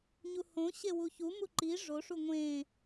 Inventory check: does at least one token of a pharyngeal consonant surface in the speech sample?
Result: no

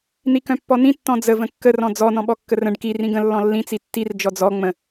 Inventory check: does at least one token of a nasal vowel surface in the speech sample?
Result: yes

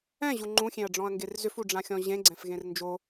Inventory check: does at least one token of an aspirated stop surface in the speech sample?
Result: no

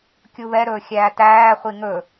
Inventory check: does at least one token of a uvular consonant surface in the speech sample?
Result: yes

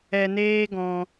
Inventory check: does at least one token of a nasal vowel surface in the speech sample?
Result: yes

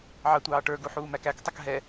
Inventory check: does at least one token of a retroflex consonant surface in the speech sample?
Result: yes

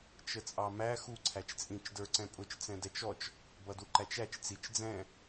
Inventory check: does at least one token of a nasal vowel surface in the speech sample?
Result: yes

